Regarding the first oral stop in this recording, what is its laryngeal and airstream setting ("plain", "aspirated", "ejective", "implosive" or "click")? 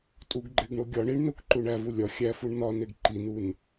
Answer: ejective